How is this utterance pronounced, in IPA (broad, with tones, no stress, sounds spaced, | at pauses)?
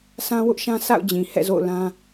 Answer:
s ã˦ w ʊ˦ ʔ ʃ ã˦ sʰ a̰˦˨ ʊ̯ d͡ʑ ĩ˨ h ɛ̰˦˨ z o̰˦˨ ʊ̯ l ã˦